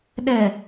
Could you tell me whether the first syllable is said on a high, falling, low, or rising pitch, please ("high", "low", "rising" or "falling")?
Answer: low